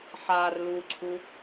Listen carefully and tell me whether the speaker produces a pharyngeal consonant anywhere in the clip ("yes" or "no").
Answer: yes